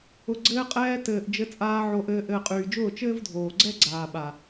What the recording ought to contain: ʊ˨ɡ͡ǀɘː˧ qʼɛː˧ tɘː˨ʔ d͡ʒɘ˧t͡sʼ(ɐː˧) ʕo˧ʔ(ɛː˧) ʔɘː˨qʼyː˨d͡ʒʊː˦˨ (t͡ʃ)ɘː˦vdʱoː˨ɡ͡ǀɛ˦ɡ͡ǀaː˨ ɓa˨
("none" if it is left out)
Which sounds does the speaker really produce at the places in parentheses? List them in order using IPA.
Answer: aː˧, ɘː˧, t͡ʃ

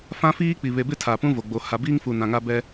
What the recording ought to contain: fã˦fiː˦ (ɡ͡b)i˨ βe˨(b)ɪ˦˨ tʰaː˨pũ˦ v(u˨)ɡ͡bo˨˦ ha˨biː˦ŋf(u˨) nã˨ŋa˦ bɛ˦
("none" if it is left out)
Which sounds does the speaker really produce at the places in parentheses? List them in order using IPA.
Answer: k͡p, b, o˨, u˨

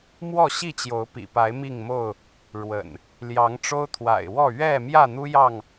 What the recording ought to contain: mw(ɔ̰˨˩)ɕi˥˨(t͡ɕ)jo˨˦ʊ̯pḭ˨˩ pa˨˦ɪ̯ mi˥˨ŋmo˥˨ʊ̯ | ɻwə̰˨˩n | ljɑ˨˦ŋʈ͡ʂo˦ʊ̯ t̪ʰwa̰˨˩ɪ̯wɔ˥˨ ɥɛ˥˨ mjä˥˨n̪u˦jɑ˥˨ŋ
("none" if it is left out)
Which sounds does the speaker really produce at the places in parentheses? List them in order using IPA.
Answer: ɔ˥˨, t͡ɕ

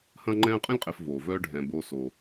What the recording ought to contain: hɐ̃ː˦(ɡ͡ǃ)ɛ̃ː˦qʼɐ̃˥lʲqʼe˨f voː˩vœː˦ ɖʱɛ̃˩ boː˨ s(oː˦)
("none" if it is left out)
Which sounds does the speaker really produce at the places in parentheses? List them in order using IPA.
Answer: ŋ͡ǃ, oː˩

